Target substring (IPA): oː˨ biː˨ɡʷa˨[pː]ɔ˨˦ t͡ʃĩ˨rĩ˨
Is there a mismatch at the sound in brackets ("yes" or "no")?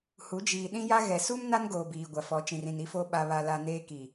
yes